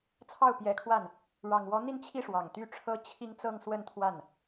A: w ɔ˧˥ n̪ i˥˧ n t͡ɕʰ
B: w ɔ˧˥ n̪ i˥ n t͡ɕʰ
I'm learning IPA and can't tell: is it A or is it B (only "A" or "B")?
A